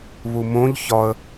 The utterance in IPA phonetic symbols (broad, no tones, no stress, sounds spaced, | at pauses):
β u m õ ʎ ç ɒ ə̯